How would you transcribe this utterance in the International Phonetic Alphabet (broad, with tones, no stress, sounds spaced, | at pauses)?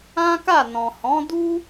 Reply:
ã˦ k a˦˨ n ɔ̃˨ h ɔ̃˨˦ d u˦